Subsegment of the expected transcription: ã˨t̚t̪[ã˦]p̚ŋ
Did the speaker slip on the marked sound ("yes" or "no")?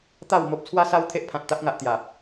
yes